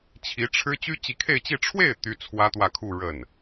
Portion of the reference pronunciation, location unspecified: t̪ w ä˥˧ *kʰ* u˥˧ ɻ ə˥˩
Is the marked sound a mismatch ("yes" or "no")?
no